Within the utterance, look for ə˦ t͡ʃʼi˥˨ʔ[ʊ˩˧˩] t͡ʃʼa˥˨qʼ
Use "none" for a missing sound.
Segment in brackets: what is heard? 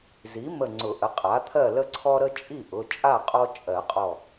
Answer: ʊ˩˧˩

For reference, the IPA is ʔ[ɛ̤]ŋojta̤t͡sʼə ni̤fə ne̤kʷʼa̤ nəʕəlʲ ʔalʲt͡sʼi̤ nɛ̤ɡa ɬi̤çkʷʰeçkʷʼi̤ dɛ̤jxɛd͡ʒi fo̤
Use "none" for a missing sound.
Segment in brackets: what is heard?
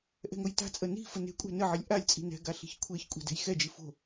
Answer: ɛ̤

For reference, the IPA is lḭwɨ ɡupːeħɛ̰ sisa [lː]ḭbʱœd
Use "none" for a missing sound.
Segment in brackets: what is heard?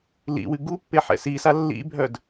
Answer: lː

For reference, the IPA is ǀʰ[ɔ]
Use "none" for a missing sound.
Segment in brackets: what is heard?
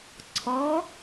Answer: ɔ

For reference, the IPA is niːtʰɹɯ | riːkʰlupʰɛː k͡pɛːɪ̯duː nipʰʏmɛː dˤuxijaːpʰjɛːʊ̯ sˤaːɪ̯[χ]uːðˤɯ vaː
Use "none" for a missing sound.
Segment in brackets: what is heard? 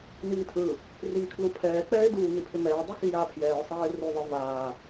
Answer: r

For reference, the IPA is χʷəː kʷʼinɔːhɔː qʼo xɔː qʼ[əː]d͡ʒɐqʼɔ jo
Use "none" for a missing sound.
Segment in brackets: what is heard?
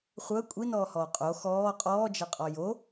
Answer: ɔː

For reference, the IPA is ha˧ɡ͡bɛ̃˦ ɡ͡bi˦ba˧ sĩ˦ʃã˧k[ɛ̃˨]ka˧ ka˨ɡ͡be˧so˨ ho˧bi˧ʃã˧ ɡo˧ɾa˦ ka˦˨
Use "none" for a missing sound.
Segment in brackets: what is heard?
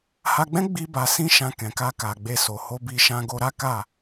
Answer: ɛ̃˨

